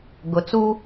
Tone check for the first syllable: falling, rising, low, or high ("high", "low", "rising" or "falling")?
low